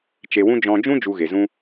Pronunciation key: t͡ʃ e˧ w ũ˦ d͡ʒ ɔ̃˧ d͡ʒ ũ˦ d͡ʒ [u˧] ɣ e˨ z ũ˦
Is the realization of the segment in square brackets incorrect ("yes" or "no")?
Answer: no